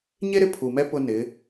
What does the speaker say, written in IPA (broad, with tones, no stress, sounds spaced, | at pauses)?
ɲ e˦ ɾ ɪ˦ pʰ u˨ m ɛ˦ p ʊ˦ n ɪ˨˦